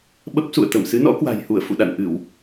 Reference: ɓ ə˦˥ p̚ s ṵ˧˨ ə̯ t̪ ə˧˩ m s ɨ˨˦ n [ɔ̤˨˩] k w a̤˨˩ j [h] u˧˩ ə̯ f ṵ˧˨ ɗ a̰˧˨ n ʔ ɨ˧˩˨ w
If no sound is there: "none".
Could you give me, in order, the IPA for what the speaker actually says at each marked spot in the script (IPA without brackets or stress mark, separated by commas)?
ɔ̰˧˥, h